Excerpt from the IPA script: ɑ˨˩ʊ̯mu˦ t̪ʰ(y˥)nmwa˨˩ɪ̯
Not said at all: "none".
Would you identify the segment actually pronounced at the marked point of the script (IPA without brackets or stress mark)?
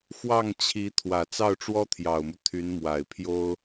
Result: y˧˥